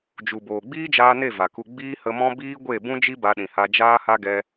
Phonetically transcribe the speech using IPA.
d͡ʒu˨boː˨ɡ͡biː˦d͡ʒaː˧ ne˦˨va˨ku˧ ɡ͡biː˦hə˧mɔ̃˦ biː˦ɡʷe˦˨ bũ˦d͡ʒi˦ ba˧ɗĩ˨ha˧ d͡ʒaː˦ha˦ɡɛ˧

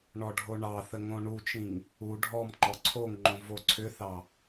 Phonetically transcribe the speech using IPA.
ɳɔɖʱoɳɑθə ŋõɳut͡ʃĩŋ | u ɖʱɔm ŋ͡ǃɔǀʰoŋŋ͡ǃõ voǀʰʏθɑ

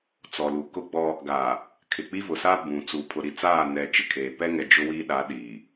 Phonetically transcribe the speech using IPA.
t͡sɔ˨lu˨ kʊ˦ɡ͡bɔ˦ | ɡa˨ | kʰɪ˨k͡pi˦vʊ˨sa˦ bũ˨ t͡su˨ pʰʊ˨ɾi˨ t͡saː˦˨nɛ˨ t͡ʃɪ˨kʰeː˨ pɛ˦ŋɛ˨ d͡ʒʊ˦wiː˦ɗa˨˦ ɗi˨

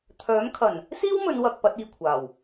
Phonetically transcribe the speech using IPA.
t̪ʰœː˨˥mkʰɐ˨˩n | siː˥wmɵ˨˧nwɐ˨k̚ pɐ˨˥t̚iː˨kʷʰaː˨˩w

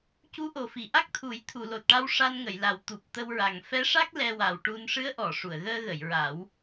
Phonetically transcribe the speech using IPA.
cu˧˥ ʔo˨˩fi˨˩˨ ʔa˦˥k̚t̪ʰu˨˩˦j t̪ʰu˨˩˨lo˨˩t̚ʈa˧w ʂa˧nŋə˨˩˨j la˨˩wt̪u˨˩p̚t̪ə˧wɹa˨˩ŋ fɛ˧˥ʂa˦˥k̚ lɛ˧wa˨˩wʈu˧n ʂɨ˧˥ə̯ʔɔ˨˩˨ ʂu˨˩˨ə̯ɣəː˧ɣə˨˩˨j ɹa˨˩˦w

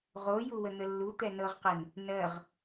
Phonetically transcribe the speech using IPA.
ʁo juwən̪əlːu t̪ɛnɤʁqɛn | nɜʁ

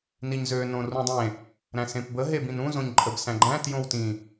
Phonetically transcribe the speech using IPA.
niɲzø nõrũdˤẽ | ɾæ̃sẽpbə ɦebĩnũ zõɲǃʼəb sæ̃ɡ͡ǃæ̃ tjõwtĩ

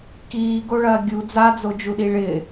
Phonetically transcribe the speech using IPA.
kiːɡoɭɐː ɡʲu d͡zad͡zod͡ʒuɗi ɭɪ

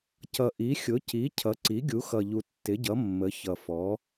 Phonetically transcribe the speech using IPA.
cʌ˨˩ʔi˩˥ xʲʊ˩˥ci˩˥cʰʌ˩˥ǀi˩˥ ɡʲu˩˥xʌ˨˩ʎu˨˩ tːɪ˩˥ɟʌ˩˥ mːə˩˥çʌ˨˩fɔ˩˥

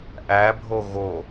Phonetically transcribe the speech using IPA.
ʔæbʱo ɣo

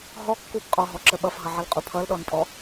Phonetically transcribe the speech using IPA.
ɦɔkːub qʼɔɦɔǁə ɓʌfɦʌʕʌlqʼu pʰʌlɗɔnpʼɔ

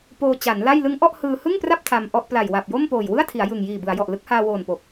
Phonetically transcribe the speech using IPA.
poː˧t͡ɕa˩˦nla˥˩j lɯ˦˥ŋʔɔ˥˩ʔ hɯː˧hɯ˥˩ŋpra˥˩p̚ tʰa˧mʔɔ˥˩ʔ pla˨˩jwa˨˩p̚jo˥˩m poː˨˩jwɯ˥˩a̯tʰi˩˦a̯ jɯ˨˩ŋjiː˨˩ bɯ˩˦a̯jɔ˨˩ʔ lɯ˦˥k̚haː˧woː˨˩npo˨˩k̚

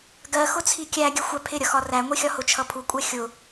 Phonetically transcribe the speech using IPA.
ɡɜxʊt͡sʰi kʲæɡʲə xʷæpʰɪɾʲʌxɒ ræŋʷixʲɒ hʊt͡ʃʰʌpʰukʷʼɛ xʲʊ

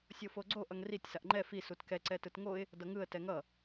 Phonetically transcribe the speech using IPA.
sʲofoɡ͡ǀo ʔʌŋritʲ saʔŋ͡ǃɛ fi sutkɛ ǀɛtɯtŋoɪ̯ | dʌŋɯə̯ tɛŋʌ

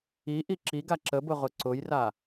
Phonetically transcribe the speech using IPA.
iʔi ǁiɡa ǁəbʊ ʁʊǀʊjra

